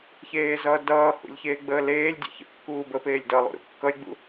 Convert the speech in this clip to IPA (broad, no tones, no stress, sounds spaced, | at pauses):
ç eː z ʌː d ʌː h ṵ lʲ ç eː ɡ͡b əː l eː lʲ dʲ ə̰ ç ə̰ kː uː b ə p eː lʲ d ʌ lˠ ṵ ɾ ṵ kː ʌ lʲ ɡ͡b ṵ